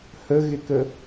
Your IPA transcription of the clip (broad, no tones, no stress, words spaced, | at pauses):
həɣɪkə